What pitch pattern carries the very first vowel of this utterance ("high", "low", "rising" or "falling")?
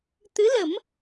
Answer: rising